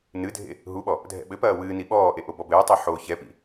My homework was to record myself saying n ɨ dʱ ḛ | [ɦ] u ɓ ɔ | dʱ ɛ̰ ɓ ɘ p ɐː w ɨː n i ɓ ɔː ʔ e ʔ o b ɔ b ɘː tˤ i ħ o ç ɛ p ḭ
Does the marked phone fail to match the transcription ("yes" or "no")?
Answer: no